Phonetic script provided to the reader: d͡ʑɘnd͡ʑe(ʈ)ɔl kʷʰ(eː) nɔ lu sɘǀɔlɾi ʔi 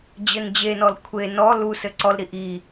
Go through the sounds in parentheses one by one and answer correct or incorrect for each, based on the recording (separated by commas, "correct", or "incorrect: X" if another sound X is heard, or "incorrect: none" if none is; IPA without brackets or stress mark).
incorrect: n, incorrect: e